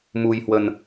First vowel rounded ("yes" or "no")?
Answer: yes